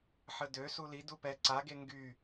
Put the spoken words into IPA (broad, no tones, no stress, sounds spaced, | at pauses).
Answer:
ħ ə d ø s u l i d u p ɛ ǀ a ɡ e ŋ ɡ y